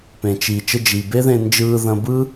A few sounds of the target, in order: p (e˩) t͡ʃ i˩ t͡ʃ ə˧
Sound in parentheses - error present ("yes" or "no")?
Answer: yes